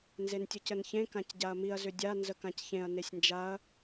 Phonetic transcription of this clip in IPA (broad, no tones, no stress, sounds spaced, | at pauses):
n z e n tʲ ʊ c ə n ç ẽ k ã c ɟ a ɐ̯ m i ɐ̯ z ʏ dʲ a n z ə k ã c ç ẽ ɐ̯ n e sʲ n d͡ʒ a ɐ̯